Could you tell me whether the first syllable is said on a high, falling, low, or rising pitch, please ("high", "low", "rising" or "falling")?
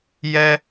high